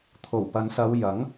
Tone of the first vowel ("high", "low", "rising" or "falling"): low